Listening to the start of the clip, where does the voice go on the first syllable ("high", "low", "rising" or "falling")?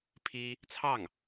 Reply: high